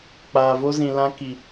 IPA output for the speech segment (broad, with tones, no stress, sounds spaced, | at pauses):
k͡p aː˨ v o˧ z ĩ˨ l ã˧ k i˨